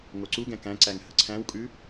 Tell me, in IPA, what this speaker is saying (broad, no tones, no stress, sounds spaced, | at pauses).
ŋ o ǀ u ɡ ɛ̃ k æ̃ ǀ æ ŋ h ə ǀʰ æ̃ w kʼ ʉ